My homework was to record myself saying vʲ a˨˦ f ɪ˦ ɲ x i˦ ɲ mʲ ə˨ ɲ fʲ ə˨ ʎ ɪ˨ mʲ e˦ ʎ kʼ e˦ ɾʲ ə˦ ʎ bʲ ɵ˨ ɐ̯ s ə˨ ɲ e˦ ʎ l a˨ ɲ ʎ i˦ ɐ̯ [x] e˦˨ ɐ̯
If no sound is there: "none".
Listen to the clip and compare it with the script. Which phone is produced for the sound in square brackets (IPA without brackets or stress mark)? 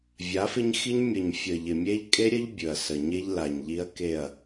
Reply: k